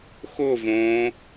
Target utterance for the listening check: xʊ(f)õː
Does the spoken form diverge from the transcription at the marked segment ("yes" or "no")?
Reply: yes